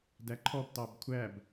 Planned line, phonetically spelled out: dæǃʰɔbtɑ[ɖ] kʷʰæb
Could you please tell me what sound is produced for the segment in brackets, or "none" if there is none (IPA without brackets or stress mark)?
b